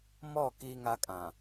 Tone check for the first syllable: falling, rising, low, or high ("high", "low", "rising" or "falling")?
falling